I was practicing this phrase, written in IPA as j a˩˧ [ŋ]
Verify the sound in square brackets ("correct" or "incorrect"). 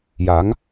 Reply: correct